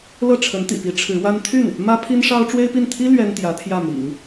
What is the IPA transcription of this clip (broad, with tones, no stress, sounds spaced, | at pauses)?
l ɤ˥˩ ʈ͡ʂʰ ə˧˥ n t̪ ḭ˨˩ p i˧˥ ʈ͡ʂʰ ɻ̩˧˥ w a˥ n t̪ʰ y˥˩ n | m ä˥ pʰ i˥ n ʂ ɑ˥ ʊ̯ ʈ͡ʂ w e˥ ɪ̯ p i˥˩ n t̪ʰ i˥ l ɥ ɛ˥ n t̪ j ä˧˥ t̪ʰ j ä˥˩ m ḭ˨˩˦ ŋ